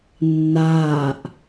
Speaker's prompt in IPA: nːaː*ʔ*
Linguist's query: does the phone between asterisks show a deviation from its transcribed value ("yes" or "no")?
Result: no